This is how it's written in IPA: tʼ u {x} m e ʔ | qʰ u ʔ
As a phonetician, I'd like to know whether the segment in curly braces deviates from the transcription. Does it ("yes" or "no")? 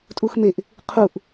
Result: no